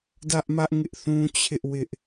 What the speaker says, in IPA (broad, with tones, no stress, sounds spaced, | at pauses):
d ä˦ ʔ m ä˦ ʔ ŋ ɪ˦ ʔ θ ũ˦ t͡ɕʰ ɪ˦ ʔ w ɪ˦ ʔ